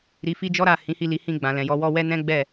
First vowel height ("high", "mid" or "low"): high